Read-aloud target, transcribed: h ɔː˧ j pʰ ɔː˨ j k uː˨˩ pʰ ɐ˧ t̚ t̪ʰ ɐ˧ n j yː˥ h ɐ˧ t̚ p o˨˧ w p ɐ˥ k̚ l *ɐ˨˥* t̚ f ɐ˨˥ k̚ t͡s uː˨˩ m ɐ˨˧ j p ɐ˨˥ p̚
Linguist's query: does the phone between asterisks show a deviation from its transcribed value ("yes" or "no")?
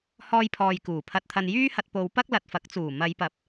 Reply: yes